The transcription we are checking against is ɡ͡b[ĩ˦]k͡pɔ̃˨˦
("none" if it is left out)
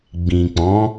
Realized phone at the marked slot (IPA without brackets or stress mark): ĩ˨